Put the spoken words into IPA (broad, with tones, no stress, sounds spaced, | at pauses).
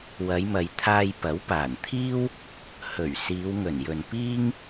w ɐ˨˧ j m ɐ˨ j t̪ʰ aː˧ j p ɐ˨˥ w p aː˨˩ n t̪ʰ iː˥ w | h ɵ˨˩ ɥ s iː˨˧ w ŋ ɵ˨˩ n j ɵ˨ n p iː˥ ŋ